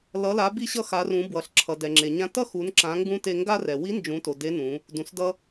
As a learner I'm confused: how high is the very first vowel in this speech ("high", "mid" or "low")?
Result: mid